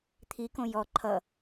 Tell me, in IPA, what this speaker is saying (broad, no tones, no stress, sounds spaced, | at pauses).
t̪ʰ i k õ j ɔ ǃʰ ʌ